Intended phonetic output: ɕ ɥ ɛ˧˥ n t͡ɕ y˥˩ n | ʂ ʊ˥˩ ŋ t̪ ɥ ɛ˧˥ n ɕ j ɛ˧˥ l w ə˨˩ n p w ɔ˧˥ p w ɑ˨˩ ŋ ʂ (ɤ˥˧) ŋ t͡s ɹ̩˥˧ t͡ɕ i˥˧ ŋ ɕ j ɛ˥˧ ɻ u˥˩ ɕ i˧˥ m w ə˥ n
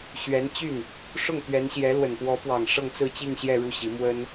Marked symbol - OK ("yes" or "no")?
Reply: yes